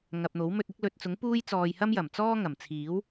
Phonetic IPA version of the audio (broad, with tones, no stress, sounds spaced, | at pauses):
ŋ ɐ˨ p̚ n̪ o˨˥ w m ɵ˧ t̚ ɪ˧ k̚ l ɵ˨ t̚ t͡s ʊ˨˥ ŋ p uː˧ j t͡s ɔː˨ j h ɐ˧ m j ɐ˨˩ m t͡s ɔː˥ ŋ ɐ˨˩ m t͡sʰ iː˨˥ w